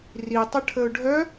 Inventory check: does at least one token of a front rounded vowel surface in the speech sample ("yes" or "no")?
yes